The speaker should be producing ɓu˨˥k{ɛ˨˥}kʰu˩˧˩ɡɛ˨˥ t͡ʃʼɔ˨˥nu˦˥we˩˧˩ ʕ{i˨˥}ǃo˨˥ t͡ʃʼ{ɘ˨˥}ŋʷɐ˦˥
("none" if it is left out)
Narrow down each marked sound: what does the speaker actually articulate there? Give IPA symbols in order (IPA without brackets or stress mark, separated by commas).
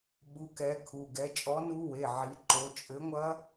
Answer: ɛ˨˥, i˨˥, ɘ˨˥